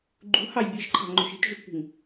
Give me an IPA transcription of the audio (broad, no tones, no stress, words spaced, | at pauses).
ɡ͡ǃṳhɑj bʲɨʒǃʰɑ̤ŋ͡ǃo̤ʃ i̤tʒutpṳŋ